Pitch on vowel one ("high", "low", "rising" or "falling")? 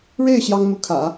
falling